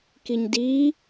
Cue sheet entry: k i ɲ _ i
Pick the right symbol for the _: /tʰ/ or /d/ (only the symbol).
d